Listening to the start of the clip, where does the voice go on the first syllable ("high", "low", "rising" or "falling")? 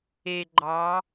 low